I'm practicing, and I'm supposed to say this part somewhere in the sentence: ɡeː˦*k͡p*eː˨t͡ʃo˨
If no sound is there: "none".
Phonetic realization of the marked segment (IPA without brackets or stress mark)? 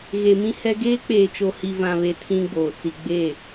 k͡p